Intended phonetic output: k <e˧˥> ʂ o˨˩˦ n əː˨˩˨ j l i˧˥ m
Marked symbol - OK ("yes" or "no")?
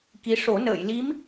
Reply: no